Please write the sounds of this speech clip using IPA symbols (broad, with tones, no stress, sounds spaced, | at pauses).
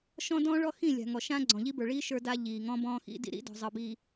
ʃ ɔ̃˦ d ɔ̃ː˦ ɭ ɔ˦ x ĩ˦˨ lʲ a̤˨ ŋ ɔ˨ ʃ ã˦ ɡ͡ǀ ɔ̃˨ ʎ i˦ b ə˞˨ ɭ iː˦ ʃ ə˞˦ d a˦ ʎ iː˨ ŋ ɔ̃˦ b ɔ̃ː˦ x ḭ˦ d ḭ˦ ɾ ḭ˦ d ɔ̤˨ zˤ ɤ˨ b iː˨